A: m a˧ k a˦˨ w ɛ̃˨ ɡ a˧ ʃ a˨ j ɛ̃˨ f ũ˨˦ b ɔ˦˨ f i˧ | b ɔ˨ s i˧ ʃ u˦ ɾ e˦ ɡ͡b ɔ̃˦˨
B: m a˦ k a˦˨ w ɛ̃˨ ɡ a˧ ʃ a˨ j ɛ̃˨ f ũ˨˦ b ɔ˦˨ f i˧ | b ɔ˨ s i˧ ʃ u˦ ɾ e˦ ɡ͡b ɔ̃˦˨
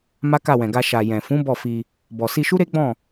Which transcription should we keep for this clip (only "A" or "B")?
B